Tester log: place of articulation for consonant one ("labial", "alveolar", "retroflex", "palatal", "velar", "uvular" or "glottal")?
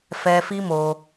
labial